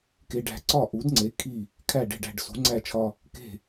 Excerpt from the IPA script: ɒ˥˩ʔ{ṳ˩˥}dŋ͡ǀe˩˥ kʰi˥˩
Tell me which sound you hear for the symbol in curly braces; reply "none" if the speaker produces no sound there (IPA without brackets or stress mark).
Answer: u˩˥